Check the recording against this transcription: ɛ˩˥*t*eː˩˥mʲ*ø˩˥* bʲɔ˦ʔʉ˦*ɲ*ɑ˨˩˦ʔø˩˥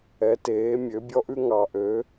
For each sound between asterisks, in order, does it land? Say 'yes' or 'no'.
yes, yes, no

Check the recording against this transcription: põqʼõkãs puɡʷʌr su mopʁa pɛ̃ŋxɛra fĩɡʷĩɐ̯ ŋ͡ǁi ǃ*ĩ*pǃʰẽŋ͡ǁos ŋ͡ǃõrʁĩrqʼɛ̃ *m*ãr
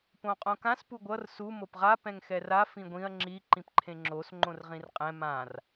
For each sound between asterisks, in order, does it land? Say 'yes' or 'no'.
yes, yes

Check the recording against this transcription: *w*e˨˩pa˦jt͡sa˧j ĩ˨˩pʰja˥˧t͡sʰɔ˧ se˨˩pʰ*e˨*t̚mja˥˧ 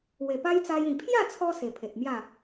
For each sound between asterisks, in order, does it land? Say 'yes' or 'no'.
yes, yes

